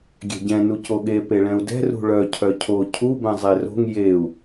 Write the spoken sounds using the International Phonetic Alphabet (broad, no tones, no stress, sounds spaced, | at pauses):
ɡʲ ɛ̤ ɟ ɛ̃ n u c o ɠ e p e ɭ ɛ̃ u̯ d ɛ̤ r ṳ ɭ œ cʰ œ cʰ o cʰ u b ɛ̃ zˤ e r o̤ ŋ j e u̯